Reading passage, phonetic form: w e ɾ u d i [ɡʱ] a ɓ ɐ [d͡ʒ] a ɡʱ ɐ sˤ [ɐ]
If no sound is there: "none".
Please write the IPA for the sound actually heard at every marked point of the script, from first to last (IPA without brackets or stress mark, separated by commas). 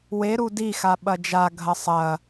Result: x, d͡ʒ, ɐ